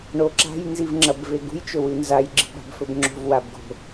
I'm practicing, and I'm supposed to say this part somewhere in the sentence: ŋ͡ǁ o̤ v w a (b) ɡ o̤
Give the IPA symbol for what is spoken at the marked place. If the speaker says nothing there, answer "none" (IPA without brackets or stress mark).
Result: b